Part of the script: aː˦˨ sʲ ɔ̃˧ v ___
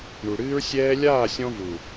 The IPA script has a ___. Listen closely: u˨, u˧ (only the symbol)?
u˨